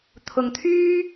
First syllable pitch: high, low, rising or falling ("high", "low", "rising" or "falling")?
low